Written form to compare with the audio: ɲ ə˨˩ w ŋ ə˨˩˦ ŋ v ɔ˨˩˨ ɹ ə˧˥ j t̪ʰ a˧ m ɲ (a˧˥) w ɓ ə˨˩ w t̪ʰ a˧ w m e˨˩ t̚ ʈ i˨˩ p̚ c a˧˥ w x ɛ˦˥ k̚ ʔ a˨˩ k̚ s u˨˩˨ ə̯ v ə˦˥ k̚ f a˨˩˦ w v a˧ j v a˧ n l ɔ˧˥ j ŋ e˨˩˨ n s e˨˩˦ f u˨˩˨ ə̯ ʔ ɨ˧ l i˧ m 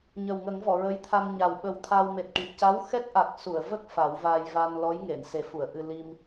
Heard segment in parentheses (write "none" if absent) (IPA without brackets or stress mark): a˨˩